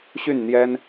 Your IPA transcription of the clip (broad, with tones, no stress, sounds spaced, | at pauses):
ɕ y˥˨ n n̪ j ɛ˦ n